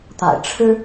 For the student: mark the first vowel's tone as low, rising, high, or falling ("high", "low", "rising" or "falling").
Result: low